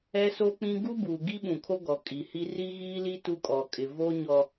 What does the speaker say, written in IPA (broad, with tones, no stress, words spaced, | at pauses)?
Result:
ɛ˦so˦k͡pĩ˦ ɡu˦buː˨ɡi˦ɓũ˨ kʰo˦ɡɔ˨ kʼi˨hi˦ ri˦ɣiː˦li˦ tu˦kʼɔ˨kʼɪ˨ vo˦ɲɔ˨